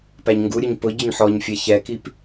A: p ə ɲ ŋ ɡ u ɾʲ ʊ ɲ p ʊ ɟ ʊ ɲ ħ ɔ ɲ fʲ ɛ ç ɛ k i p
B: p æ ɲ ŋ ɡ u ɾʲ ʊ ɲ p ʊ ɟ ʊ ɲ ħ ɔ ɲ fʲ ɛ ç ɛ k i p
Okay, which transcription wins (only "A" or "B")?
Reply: B